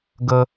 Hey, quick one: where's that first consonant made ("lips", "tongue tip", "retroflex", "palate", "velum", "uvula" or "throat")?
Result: velum